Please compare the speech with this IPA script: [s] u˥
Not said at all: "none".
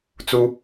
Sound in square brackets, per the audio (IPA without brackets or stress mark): t͡s